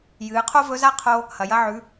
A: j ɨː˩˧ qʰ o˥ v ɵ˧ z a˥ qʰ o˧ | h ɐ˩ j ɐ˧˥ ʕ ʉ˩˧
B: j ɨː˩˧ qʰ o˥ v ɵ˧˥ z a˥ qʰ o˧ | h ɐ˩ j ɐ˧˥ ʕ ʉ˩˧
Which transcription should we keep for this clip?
B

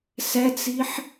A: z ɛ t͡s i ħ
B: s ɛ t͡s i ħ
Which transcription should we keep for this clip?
B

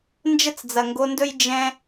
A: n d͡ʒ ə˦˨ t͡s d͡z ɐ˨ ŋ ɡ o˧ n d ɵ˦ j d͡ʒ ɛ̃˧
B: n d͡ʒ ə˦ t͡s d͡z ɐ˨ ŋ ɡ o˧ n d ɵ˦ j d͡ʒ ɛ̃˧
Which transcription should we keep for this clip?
B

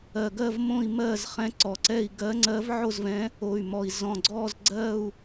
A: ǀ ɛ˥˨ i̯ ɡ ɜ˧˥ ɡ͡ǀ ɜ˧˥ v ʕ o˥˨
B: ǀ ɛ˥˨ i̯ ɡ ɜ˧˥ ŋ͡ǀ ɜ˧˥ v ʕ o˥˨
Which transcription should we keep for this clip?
B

